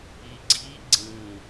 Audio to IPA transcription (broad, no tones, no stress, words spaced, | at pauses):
iɡ͡ǀi ɡ͡ǀĩ